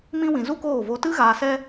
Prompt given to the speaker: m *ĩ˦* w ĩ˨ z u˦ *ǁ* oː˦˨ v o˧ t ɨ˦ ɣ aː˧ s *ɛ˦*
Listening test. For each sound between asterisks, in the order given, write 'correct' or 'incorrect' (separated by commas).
correct, incorrect, correct